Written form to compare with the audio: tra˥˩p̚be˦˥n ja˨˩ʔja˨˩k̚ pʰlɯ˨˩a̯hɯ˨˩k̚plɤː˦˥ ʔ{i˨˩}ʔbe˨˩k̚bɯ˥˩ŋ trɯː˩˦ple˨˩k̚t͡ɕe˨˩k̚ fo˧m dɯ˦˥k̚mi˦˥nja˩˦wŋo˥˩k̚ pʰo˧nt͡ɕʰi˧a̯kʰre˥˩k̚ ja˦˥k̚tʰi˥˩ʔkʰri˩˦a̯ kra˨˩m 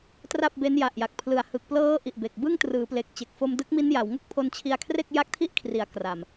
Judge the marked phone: correct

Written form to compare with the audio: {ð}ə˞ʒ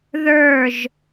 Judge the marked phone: correct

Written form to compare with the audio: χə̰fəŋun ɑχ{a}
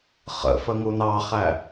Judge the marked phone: incorrect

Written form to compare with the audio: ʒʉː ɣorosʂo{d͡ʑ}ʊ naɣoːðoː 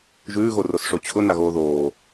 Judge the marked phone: incorrect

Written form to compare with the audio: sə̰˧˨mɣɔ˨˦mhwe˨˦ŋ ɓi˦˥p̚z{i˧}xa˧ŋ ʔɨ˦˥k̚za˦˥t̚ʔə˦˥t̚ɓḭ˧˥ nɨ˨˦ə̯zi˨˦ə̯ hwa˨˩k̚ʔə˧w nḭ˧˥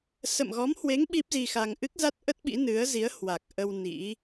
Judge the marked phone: correct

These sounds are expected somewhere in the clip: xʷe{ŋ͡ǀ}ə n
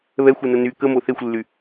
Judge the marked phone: incorrect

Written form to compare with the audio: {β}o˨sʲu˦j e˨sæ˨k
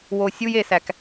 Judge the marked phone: incorrect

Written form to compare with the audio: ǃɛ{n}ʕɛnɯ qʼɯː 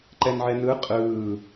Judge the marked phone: correct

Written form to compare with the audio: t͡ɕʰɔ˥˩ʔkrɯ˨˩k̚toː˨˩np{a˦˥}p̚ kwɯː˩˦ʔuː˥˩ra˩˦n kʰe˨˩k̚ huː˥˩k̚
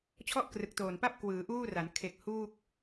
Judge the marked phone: incorrect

